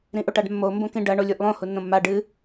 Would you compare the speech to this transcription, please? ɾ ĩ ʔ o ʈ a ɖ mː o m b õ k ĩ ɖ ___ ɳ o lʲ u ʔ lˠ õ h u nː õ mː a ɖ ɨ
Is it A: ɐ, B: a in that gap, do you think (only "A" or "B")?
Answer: A